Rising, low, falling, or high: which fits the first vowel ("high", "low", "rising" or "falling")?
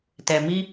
low